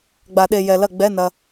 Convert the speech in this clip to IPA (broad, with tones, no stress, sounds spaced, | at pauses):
ɡ͡b a˨˩˦ ɗ e˨ j ɛ˨ l ɐ˥˩ ɡ͡b ɛ˧˥˧ n ɐ˨